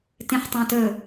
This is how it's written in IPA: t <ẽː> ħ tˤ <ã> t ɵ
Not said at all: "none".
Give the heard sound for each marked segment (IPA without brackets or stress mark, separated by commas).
ẽ, ã